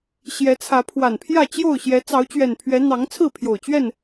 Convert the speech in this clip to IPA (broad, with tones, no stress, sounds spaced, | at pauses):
ɕ j ɛ˨˦ t͡sʰ ä˨˦ pʰ w a˨˩ n pʰ j ä˥˨ t͡ɕ j o˥˨ ʊ̯ ɕ j ɛ˨˦ t͡s ɑ˨˦ ʊ̯ t͡ɕ ɥ ɛ˨˩ n pʰ ɥ ɛ˨˦ n̪ ɑ˨˦ ŋ t͡sʰ ɹ̩˥˨ pʰ j o˨˩ ʊ̯ t͡ɕ ɥ ɛ˥˨ n